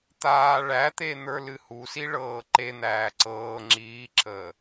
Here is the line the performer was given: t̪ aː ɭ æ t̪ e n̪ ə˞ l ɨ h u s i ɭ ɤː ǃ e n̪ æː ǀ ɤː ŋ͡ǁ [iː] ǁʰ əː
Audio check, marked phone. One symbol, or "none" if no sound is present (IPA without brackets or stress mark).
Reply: iː